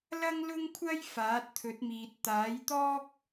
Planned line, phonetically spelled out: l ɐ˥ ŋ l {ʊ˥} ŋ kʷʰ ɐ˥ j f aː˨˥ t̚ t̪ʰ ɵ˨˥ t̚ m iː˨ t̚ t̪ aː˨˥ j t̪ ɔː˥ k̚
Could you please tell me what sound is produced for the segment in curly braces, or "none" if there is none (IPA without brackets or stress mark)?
ʊ˥